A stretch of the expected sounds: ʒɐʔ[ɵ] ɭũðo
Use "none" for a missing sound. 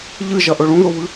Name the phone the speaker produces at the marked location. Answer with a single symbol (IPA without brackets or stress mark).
ɵ